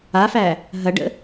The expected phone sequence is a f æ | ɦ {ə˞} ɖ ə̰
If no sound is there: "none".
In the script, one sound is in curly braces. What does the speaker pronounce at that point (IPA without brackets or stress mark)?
ɐ